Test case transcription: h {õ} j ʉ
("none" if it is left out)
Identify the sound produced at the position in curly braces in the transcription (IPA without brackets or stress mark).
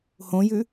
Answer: õ